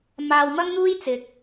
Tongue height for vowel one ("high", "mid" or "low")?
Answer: low